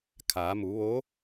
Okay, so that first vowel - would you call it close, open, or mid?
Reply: open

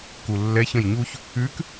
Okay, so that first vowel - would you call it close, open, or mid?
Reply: close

